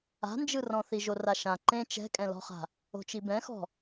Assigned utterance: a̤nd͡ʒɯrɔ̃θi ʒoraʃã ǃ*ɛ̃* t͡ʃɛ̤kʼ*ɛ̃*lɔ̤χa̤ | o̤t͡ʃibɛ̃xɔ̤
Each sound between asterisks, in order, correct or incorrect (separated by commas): incorrect, correct